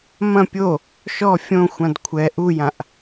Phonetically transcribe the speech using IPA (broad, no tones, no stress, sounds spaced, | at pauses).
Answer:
m ɐ̃ pʲ o | ʃ ɔ fʲ õ xʷ ã d kʷʰ ɛ ʔ u j ã ʔ